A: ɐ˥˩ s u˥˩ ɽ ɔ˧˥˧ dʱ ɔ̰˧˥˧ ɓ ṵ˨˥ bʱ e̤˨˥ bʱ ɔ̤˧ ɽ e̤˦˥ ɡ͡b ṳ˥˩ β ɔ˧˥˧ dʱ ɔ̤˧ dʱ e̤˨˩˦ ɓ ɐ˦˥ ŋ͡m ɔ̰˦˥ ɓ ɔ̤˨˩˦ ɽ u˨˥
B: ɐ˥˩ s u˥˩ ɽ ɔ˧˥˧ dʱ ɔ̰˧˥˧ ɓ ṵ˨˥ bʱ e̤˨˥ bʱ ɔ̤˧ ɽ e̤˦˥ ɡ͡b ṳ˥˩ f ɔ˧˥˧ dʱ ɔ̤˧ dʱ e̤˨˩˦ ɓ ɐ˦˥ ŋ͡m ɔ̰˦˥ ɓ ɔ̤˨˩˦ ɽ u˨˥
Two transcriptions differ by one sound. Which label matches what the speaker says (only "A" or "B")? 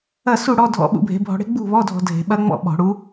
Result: A